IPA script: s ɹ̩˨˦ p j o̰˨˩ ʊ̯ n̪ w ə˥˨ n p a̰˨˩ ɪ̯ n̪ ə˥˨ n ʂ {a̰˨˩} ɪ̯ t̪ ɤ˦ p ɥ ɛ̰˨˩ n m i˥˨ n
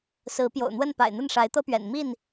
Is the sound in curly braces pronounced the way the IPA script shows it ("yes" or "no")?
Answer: no